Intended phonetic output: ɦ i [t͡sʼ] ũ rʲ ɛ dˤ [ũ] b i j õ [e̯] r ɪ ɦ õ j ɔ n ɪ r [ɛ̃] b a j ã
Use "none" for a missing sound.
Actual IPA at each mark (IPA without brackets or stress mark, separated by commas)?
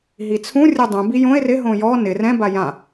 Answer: t͡sʰ, ũ, e̯, ɛ̃